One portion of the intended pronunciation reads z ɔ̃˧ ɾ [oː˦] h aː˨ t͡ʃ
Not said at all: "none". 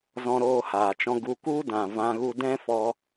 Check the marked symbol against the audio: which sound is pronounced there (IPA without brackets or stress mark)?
oː˧